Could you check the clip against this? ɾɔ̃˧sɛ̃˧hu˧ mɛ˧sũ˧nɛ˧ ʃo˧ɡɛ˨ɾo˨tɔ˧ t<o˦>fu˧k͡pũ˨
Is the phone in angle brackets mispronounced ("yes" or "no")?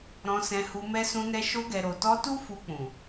yes